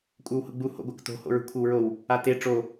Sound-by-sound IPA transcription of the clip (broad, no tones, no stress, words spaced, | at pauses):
kʷʼə˞whʊɡ͡bu ho̰ɡʷakto̤ ho̰ɹṳkʷʰɘwɹow | ate ʈ͡ʂo